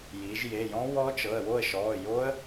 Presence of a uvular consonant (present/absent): absent